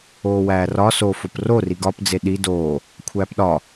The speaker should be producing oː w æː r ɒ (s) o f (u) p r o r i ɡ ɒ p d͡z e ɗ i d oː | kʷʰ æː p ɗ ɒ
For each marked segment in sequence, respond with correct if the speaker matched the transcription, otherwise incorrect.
correct, incorrect: o

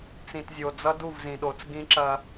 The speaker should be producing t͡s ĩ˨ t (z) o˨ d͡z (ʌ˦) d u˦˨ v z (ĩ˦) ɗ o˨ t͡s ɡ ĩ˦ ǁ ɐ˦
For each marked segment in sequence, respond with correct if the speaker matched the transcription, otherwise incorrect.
incorrect: zʲ, correct, incorrect: ĩ˨

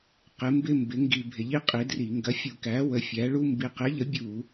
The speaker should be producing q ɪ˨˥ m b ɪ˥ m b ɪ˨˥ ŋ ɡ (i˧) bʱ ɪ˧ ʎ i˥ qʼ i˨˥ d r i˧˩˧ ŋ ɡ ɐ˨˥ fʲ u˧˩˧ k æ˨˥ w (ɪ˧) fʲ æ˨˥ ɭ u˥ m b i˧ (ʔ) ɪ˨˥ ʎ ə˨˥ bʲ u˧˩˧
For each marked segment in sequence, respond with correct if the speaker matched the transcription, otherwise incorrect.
correct, incorrect: ə˧, incorrect: q

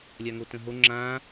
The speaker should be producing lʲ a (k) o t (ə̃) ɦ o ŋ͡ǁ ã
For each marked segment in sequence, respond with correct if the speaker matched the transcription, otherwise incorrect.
incorrect: ŋ, correct

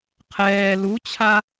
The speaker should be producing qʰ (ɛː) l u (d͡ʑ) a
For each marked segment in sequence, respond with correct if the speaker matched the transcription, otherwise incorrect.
correct, incorrect: t͡ɕʰ

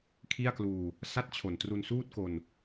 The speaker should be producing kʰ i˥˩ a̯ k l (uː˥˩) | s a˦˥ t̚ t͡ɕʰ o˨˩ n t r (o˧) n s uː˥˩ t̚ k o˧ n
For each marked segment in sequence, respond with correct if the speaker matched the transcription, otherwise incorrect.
incorrect: uː˧, incorrect: u˧

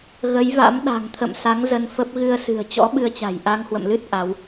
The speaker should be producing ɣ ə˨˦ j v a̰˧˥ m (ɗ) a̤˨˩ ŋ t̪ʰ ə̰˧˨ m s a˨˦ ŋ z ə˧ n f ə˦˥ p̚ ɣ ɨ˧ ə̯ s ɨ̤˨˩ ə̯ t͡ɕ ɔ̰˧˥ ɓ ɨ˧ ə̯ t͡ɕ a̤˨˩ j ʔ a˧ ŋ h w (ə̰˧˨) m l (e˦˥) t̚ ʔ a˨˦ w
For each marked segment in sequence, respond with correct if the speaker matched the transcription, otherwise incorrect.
correct, correct, incorrect: ɨ˦˥

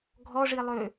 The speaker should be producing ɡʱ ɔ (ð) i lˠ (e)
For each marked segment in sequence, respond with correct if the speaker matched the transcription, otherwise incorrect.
incorrect: ʐ, incorrect: ø

